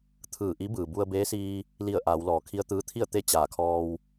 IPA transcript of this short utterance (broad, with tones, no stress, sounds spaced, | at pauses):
t̪ʰ ɯː˧˩ ʔ i˧˥ b ɯː˩ b u˧ ə̯ b eː˧˥ s iː˧ | l i˧˩ ə̯ ʔ aː˩˧ w l ɔː˩ kʰ i˧ ə̯ t̪ ɯː˧˥ t̪ʰ i˥˨ ə̯ t̪ e˥˨ t͡ɕ aː˧˩ kʰ ɔː˧ w